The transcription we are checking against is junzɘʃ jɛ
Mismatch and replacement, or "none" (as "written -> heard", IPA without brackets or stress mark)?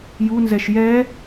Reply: ɘ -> ɛ